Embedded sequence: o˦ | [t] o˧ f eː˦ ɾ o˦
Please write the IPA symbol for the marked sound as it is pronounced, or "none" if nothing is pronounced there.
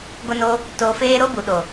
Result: t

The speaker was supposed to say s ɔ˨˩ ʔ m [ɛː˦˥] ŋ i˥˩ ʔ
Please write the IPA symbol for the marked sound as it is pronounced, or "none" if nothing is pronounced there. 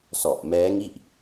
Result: ɛː˦˥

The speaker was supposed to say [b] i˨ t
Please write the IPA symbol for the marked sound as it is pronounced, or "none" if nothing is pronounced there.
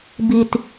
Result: b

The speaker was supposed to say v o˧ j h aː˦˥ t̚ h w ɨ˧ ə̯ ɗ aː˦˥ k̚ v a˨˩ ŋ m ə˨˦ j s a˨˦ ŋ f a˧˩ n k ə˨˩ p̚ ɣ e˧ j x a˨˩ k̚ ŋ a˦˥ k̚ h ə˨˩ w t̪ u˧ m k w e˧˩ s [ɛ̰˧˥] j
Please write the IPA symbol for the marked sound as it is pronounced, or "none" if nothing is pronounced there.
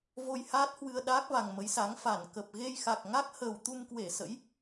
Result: ə̰˧˥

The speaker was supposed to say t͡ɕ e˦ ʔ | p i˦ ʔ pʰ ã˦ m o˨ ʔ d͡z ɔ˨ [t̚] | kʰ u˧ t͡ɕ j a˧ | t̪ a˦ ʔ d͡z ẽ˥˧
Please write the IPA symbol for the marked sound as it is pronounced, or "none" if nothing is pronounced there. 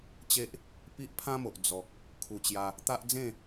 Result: k̚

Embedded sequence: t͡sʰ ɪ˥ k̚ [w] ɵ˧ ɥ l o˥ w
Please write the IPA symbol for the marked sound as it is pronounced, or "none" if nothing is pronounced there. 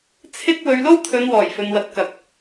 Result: w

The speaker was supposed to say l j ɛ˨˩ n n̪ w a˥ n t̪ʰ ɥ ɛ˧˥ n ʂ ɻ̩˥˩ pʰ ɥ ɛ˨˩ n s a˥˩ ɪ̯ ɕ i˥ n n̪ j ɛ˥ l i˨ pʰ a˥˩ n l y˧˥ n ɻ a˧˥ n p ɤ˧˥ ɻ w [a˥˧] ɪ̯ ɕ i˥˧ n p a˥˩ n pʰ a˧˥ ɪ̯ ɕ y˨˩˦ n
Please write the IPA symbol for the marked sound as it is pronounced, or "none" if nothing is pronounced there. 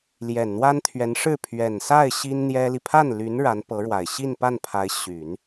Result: a˨˩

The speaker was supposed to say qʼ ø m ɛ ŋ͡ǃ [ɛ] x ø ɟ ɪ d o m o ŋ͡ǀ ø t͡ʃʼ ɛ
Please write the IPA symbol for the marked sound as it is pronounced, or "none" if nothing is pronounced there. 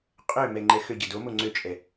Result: ɛ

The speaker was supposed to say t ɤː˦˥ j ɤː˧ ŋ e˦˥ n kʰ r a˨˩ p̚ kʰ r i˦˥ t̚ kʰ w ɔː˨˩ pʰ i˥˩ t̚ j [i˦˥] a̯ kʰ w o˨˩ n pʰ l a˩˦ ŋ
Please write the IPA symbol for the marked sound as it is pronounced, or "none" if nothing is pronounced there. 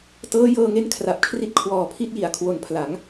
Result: i˨˩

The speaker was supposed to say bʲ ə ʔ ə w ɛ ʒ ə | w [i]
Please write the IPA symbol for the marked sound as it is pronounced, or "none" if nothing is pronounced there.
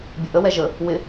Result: ɪ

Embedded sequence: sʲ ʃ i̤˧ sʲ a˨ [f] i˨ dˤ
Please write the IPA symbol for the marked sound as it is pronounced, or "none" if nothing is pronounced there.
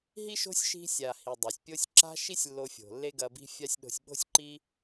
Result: h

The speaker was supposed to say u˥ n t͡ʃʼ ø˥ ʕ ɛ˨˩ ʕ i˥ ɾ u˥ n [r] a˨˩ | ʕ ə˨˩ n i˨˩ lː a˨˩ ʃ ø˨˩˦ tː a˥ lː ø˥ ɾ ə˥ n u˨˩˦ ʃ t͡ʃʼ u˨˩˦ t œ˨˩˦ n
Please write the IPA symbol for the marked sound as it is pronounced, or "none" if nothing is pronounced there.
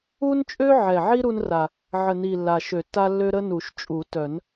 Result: r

